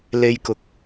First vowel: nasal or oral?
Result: oral